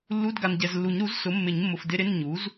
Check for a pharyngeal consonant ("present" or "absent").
absent